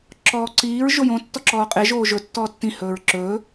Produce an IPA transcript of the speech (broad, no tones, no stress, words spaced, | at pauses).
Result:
ǁɔːǀiːɹ ʒojõ tːɔǁɔːqʼe ʒoːʒɵ tːɔːtːĩ hɵːɹǁɵː